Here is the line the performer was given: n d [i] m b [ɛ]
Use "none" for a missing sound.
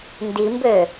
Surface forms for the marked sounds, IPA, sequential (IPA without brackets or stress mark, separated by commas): i, ø